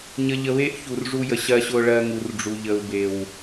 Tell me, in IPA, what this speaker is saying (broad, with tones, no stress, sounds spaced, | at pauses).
ɲ ə˨ ʎ ə˨ β e˦ ʔ ç u˨ r ʐ u˦ j ə˨ ɕ ɜ˦ ɕ ʊ˦ ɭ ɜ˦ ŋ u˨ r ɖ͡ʐ u˨ ʎ ə˨ u̯ b e˨ w